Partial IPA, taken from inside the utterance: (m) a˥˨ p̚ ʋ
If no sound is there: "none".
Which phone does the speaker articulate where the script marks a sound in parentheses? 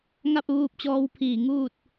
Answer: ŋ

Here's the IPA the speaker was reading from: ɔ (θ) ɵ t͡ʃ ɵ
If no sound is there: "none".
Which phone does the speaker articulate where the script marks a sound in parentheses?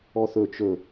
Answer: θ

